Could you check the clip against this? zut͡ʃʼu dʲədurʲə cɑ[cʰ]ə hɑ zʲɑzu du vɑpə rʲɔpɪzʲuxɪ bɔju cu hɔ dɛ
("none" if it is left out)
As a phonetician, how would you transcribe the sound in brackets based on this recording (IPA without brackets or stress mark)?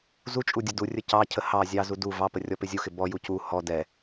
cʰ